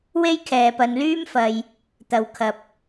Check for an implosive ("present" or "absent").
absent